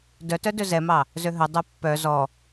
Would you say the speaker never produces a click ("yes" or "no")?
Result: yes